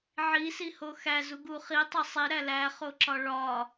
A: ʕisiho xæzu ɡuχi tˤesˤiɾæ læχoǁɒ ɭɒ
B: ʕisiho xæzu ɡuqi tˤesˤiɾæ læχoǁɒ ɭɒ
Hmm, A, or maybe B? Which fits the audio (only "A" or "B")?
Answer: A